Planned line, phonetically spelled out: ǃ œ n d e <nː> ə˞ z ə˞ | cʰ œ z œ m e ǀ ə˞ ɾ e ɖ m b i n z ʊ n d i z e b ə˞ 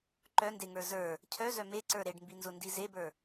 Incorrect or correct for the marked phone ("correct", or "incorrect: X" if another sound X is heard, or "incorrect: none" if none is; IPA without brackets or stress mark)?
incorrect: ŋ